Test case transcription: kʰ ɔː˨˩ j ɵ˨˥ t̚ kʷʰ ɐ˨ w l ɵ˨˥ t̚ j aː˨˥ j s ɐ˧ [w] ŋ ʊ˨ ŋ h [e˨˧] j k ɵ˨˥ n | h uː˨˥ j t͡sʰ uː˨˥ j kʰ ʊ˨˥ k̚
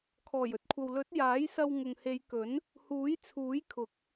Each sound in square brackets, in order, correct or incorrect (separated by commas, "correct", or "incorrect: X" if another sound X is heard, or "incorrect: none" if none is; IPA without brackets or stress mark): correct, correct